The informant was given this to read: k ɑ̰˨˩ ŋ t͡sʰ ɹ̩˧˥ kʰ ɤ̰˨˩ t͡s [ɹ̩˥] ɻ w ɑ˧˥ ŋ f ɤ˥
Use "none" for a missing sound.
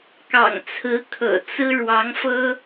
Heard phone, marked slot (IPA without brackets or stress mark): ɹ̩˥